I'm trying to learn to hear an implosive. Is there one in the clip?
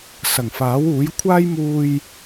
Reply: no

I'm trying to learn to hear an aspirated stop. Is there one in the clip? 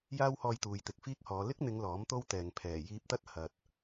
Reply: yes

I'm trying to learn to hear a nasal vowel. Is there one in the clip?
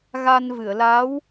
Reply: no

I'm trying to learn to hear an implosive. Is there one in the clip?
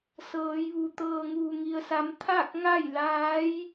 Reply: no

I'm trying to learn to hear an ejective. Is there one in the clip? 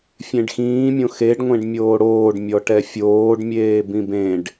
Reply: no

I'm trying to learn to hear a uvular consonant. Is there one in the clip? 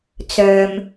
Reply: no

